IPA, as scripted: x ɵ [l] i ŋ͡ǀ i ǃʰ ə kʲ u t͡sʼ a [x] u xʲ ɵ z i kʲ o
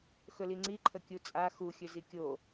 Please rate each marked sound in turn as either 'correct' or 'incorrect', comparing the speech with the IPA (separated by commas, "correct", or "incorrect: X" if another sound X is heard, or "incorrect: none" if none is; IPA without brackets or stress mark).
correct, correct